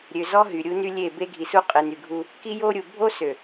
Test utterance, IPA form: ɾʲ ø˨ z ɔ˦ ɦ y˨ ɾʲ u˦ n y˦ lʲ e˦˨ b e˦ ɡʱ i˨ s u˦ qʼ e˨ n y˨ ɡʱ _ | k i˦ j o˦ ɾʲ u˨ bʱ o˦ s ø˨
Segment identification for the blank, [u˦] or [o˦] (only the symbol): u˦